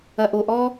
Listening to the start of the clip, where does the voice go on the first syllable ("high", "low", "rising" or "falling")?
low